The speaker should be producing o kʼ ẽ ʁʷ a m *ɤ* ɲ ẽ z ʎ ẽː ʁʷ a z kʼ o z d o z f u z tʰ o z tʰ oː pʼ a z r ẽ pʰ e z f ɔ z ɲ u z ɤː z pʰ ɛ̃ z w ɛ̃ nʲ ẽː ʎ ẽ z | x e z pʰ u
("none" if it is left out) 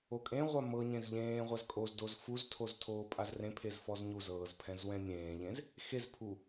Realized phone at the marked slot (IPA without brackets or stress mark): ɤ